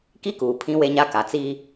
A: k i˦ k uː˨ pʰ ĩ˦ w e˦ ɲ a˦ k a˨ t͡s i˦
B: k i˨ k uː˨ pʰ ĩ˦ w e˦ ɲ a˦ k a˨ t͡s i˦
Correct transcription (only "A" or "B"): A